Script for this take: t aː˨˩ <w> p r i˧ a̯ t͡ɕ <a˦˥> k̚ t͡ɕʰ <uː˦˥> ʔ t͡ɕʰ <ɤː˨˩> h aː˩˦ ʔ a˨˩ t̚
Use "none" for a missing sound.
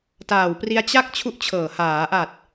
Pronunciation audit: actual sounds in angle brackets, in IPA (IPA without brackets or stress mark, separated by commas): w, a˦˥, u˦˥, ɤː˨˩